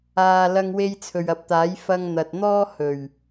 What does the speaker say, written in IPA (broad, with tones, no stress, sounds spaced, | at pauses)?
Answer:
aː˧ l ɐ˧ ŋ w e˧ j t͡sʰ ɵ˨ ɥ ɐ˨˥ p̚ t̪ aː˨˥ j f ɐ˧ ŋ n̪ ɐ˨ t̚ n̪ ɔː˥ h ɵ˨˩ ɥ